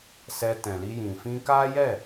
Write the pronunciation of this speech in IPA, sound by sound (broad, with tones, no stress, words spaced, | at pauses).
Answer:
sɛ˧tɛ̃˨li˧jĩ˨ fĩ˧ka˦jɛ˦˨